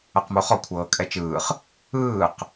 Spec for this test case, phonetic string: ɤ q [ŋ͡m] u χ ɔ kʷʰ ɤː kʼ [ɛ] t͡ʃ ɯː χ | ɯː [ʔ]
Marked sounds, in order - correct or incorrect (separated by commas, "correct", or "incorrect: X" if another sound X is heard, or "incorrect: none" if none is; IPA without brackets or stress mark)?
incorrect: m, correct, incorrect: q